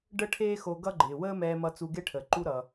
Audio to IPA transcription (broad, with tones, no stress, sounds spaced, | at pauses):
ɖ ə˥ ʈʰ eː˥ x o˧ ɡ ʌ˥ ɡ͡ǃ ɪː˩ w əː˥ m ɛː˧ m ʌ˧ t͡s u˧ ɡ e˥ ʈʰ əː˩ ǃ u˥ ɾ ʌ˩